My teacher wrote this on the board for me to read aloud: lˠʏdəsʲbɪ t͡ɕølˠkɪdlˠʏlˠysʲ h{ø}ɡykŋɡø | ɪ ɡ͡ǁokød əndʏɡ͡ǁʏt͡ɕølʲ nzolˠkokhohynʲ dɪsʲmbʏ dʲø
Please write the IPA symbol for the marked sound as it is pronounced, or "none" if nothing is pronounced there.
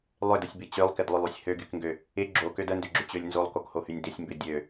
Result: ø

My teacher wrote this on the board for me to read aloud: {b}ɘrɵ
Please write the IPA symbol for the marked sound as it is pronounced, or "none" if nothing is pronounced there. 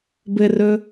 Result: b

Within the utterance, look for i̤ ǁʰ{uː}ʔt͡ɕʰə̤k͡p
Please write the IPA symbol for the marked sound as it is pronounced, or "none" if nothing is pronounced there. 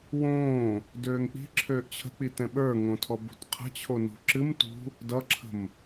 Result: øː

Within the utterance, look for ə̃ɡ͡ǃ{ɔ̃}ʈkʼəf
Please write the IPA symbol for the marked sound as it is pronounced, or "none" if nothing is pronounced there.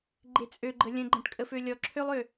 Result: ə̃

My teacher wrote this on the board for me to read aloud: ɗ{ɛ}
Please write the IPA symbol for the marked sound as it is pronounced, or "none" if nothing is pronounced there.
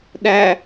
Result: æ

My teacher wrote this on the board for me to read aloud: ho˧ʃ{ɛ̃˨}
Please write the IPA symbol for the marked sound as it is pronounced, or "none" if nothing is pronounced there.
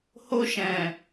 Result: ɛ̃˨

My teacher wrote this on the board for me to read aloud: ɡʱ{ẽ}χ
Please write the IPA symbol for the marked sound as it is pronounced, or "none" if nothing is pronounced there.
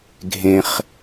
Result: ẽ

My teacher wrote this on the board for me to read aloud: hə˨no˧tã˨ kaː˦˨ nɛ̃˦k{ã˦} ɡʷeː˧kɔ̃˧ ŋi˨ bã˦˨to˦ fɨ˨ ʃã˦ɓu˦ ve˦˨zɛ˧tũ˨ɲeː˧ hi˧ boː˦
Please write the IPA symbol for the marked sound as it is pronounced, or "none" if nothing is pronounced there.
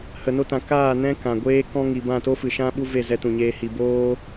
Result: ã˨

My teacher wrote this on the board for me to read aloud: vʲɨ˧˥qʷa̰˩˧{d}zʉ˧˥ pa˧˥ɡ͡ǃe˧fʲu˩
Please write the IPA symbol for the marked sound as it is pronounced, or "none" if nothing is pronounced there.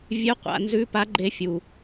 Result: n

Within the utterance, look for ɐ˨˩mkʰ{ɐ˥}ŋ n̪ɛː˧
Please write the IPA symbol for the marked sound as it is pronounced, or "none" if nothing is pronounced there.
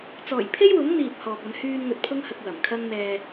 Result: ɐ˥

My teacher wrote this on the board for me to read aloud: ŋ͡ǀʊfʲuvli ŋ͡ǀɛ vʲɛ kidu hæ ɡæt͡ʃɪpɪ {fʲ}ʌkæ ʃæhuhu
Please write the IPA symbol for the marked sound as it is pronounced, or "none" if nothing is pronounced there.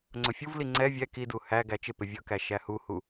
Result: vʲ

